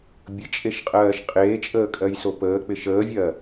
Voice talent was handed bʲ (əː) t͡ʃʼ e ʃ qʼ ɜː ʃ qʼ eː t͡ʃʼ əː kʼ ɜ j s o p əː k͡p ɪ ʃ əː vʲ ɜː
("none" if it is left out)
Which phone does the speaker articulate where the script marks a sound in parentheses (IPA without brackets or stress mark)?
ə